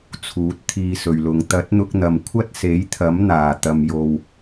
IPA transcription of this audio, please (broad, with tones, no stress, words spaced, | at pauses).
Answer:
t͡sʰuː˨˥t̚t̪ʰiː˧sɵ˨ɥlʊ˨˧ŋ t̪ɐ˨˥t̚n̪ʊ˧k̚n̪ɐ˨˩m kʷʰɐ˥t̚se˨˥jt̪ʰɐ˨˥mn̪aː˨˩ t̪ɐ˨mjo˨w